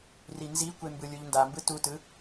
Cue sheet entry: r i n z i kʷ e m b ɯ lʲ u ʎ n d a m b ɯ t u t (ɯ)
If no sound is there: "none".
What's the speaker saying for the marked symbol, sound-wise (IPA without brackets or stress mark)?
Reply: ɯ